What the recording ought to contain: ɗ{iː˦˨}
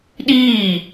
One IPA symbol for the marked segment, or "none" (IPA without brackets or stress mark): iː˦˨